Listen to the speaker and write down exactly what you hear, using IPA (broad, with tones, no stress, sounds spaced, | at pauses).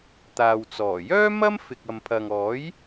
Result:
t̪ aː˨ w t͡s ɔː˨˩ j œː˥ m ɐ˥ m f ɪ˨ k̚ ɐ˨ m pʰ ɐ˨ ŋ ɔː˨˥ j